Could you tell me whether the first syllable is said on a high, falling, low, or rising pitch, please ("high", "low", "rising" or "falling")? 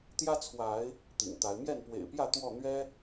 high